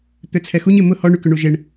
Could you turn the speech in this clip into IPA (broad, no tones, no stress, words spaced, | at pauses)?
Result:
t̪øt͡sʰɛxuɲ ɪmʊ hɔ ɳykʏɳuʒeɳ